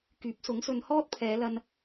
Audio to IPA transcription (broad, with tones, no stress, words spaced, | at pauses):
kyː˨˥p̚sʊ˨˥ŋsɵ˧n hɔː˥t̚pʰɛː˨˧lɐ˧n